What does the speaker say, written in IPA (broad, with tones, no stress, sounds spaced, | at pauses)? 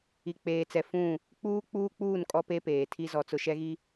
i˨ k͡p eː˨ t͡s ɛ˨ f ũ˦˨ | k͡p uː˦ k͡p uː˦ k͡p uː˦˨ n kʼ ɔ˦ p e˦ p eː˨ tʰ i˦ z ɔ˦ t͡s ʊ˦ ʃ ɛ˦ ɣ i˦